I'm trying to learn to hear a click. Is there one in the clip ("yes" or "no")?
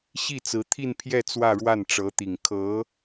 no